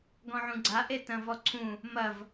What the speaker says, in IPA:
ɡ ɔ̃ ʕ ũ ɡ͡ǀ a ʔ e t ɐ̃ v ɔ ǀʰ ũ | m ɐ v

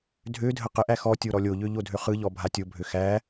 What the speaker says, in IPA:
dʱ ø dʱ ə q ə ʔ æ x ɔ tʲ o ɾ ɔ lʲ o ʎ ø ʎ o dʱ ø χ ɯ ʎ ɔ bʱ a tʲ o bʱ ø x æ

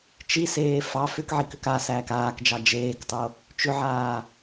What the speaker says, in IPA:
t͡ʃ i s eː f ɑ f ʏ k ʕ i k ʏ k a s æː k aː k d͡ʒ ɑ d͡ʒ eː k tˤ o | t͡ʃ ʏ ʕ aː

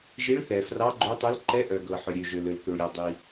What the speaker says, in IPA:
ʒ i˧˥ ɭ θ ɛ˩ f r ɑ˧˥ ɡ͡ǃ ø˧˥ tˤ ø˧˥ l ǃ ɛ˧˥ ʔ œ˩ ɡ ɤ˩ ħ œ˩ ɾʲ ø˩ ʒ ø˩ l ø˩ l k ø˩ ɭ ɾʲ ɔ˩ dˤ i˩

